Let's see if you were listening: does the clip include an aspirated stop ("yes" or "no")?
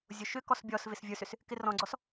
no